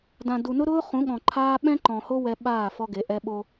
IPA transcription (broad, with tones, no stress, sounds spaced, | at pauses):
d ã˨ d u˨ n ʊ˦ ɾ ʊː˦ χ ũ˨˦ ɠ ɔ̃˨ ǃʰ aː˦ ɓ ɛ̃˦ ǃ ɔ̃˨ h o˦ w ɛ˦ ɓ aː˦˨ f ɔ˦ ɡ e˨˦ ʔ ɛ˦ ɓ o˦